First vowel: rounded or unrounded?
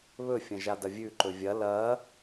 rounded